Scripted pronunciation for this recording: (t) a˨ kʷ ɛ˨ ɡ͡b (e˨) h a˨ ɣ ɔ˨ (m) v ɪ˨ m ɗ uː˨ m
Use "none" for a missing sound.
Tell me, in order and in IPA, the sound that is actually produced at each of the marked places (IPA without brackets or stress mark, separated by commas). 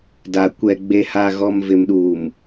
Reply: d, e˨, m